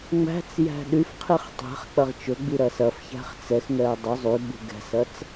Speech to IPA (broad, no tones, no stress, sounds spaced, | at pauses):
ŋ͡m æ̤ t͡s j æ̤ ɗ y f qʰ i χ tˤ ɛ̤ χ k͡p ɐ ʁ t͡ʃ ɵ ɡ͡b i ɾ ɐ s ɐ f ç æ̤ χ t͡s ɛ x ŋ ɛ ɐ̯ dˤ u zˤ y ɡ͡b ṳ ɡ ɛ̤ s ɐ t͡s